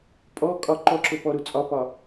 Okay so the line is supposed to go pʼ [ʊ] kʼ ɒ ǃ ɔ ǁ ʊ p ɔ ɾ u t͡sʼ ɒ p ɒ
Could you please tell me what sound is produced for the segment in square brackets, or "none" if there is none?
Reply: ɔ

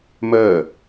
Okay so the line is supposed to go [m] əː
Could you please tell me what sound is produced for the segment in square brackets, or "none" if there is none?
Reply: m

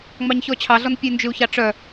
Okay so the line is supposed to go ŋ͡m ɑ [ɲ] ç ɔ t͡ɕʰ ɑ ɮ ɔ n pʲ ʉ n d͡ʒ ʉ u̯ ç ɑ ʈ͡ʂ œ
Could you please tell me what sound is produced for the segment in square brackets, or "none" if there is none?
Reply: ɲ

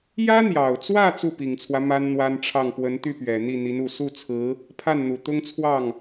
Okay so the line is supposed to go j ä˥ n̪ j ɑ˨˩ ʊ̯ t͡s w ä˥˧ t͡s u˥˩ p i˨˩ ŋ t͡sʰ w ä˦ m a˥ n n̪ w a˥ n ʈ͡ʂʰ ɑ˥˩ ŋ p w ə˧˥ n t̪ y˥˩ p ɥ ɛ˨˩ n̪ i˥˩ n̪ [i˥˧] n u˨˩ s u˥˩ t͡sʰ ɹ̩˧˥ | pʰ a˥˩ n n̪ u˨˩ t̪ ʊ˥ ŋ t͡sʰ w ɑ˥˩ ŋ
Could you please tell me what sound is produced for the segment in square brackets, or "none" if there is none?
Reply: i˧˥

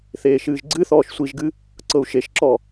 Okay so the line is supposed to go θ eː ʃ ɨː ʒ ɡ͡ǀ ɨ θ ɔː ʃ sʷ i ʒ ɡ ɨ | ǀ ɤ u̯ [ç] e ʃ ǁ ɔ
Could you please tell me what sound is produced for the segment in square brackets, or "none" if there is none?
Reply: ʃ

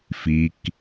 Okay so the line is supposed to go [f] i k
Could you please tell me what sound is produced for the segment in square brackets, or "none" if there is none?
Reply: f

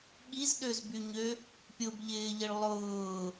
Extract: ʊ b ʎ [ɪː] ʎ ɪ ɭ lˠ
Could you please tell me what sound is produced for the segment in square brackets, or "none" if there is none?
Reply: ɪː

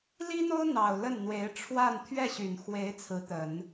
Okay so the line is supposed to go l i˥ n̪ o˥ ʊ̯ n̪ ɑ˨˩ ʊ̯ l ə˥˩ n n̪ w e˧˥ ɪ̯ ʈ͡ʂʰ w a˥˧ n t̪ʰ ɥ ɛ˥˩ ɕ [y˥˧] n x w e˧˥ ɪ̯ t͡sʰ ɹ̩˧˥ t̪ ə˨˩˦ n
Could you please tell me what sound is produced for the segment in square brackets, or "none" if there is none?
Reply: y˨˩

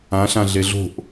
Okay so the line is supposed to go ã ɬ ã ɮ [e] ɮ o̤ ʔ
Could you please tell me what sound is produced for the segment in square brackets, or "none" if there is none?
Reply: e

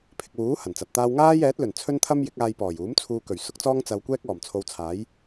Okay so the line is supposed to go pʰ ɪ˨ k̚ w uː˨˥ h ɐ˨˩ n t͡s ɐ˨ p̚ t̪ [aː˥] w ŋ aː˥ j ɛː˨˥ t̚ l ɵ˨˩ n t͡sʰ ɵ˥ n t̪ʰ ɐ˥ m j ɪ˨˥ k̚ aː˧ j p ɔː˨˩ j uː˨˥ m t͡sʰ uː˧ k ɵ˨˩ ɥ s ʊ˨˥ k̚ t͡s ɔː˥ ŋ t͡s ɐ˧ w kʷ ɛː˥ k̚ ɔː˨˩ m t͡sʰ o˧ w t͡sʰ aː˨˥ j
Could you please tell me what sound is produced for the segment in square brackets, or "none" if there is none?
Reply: aː˥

